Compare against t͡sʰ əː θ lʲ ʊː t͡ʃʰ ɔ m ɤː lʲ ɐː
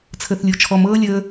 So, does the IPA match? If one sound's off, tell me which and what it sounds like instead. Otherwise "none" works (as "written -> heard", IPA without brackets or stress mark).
ɐː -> əː